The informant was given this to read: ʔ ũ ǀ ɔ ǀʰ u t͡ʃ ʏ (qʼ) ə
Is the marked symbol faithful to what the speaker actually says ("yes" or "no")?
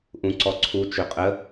yes